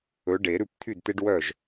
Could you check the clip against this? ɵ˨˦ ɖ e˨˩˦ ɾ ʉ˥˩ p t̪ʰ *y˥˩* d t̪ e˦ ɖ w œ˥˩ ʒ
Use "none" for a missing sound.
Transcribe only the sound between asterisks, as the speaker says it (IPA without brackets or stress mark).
y˥˩